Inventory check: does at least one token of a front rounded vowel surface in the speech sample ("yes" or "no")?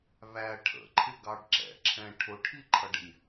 no